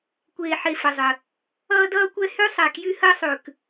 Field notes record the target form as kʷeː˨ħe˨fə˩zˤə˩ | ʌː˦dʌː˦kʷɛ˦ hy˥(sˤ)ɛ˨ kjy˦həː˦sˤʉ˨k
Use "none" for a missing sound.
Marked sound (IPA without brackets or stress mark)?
sˤ